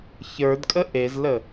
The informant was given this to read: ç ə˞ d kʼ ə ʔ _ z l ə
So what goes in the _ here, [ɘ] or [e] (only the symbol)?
e